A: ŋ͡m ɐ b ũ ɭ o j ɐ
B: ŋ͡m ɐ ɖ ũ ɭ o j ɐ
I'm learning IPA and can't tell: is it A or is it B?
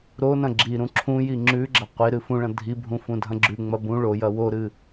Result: A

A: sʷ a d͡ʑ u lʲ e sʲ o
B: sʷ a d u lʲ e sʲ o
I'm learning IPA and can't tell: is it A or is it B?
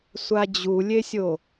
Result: A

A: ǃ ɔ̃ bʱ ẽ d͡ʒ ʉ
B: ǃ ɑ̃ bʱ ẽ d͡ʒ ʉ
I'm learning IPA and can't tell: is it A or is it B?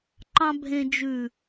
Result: B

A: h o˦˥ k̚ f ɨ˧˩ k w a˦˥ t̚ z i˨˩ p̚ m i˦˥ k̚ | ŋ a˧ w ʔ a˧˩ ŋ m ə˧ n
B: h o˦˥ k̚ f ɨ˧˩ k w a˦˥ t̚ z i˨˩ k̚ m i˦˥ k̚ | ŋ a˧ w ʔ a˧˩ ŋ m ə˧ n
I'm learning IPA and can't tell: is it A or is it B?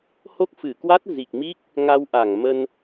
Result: B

